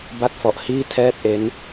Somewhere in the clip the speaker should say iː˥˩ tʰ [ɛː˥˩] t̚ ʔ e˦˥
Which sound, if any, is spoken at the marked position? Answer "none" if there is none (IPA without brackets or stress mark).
ɛː˥˩